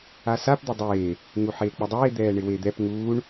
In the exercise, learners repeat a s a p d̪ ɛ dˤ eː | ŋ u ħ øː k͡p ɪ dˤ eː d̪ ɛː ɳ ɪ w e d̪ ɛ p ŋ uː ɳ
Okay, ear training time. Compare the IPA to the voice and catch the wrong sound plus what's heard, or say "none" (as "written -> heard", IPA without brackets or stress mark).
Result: øː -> eː